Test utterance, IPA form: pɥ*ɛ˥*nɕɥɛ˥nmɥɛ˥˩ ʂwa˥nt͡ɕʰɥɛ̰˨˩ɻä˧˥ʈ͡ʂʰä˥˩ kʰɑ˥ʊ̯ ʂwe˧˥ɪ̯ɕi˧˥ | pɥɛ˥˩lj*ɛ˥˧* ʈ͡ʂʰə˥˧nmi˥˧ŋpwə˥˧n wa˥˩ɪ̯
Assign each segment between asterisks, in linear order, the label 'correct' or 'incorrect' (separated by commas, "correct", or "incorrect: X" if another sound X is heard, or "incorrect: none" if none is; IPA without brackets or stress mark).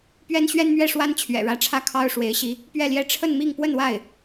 correct, incorrect: ɛ˥